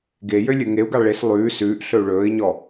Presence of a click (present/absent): absent